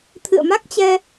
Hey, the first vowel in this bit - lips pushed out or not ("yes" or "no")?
no